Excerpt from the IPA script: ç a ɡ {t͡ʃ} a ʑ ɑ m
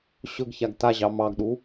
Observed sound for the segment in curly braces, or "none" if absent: t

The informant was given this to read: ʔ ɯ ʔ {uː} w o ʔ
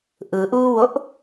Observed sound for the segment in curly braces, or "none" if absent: uː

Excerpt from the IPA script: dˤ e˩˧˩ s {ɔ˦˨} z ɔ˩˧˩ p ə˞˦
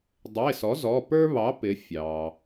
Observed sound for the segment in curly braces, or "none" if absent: ɔ˩˥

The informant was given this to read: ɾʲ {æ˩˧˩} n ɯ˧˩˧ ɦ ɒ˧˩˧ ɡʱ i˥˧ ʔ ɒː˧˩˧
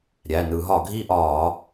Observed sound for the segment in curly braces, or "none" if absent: æ˩˧˩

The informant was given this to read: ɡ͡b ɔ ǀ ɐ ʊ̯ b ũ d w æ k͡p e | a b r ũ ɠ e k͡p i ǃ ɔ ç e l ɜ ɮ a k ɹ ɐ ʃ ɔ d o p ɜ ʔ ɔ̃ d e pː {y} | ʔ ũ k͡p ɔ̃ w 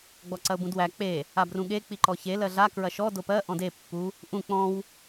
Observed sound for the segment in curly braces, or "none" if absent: u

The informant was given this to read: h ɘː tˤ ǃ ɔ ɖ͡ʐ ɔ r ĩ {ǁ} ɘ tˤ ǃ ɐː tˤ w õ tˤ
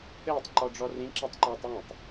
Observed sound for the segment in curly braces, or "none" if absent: ǁ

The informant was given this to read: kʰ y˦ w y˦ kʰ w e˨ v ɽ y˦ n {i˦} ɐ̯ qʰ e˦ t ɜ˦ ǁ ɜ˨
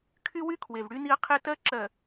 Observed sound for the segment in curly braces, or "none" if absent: i˦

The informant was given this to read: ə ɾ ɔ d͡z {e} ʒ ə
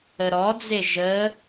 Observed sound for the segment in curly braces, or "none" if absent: e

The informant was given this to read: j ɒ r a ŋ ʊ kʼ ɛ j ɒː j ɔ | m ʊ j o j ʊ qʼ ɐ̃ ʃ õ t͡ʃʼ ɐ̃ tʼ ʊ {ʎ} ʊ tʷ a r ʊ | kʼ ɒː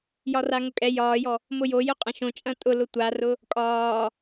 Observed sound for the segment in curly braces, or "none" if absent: l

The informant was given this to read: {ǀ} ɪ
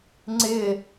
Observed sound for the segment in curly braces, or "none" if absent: ŋ͡ǀ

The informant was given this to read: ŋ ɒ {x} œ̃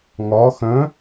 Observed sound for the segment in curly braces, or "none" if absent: x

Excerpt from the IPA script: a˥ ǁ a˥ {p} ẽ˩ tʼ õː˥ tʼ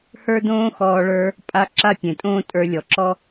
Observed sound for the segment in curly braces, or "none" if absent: pʲ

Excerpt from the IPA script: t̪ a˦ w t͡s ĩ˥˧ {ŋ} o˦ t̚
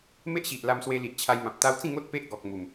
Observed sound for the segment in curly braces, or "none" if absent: ŋ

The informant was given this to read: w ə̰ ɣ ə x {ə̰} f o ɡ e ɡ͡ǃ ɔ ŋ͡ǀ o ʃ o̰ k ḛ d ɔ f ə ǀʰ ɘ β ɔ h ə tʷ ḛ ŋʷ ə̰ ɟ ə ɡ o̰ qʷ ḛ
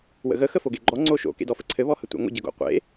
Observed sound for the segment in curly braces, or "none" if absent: ə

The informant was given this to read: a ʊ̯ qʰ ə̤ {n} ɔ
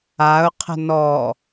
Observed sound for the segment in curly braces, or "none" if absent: n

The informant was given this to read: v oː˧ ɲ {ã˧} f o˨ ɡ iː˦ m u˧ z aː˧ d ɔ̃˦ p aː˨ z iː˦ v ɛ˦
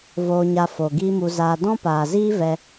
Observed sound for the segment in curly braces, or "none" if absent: a˧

